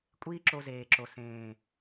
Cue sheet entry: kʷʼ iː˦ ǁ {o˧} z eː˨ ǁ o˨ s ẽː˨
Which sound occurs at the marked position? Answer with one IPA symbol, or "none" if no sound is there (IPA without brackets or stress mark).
o˧